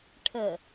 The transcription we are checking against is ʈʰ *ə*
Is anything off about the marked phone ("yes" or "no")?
no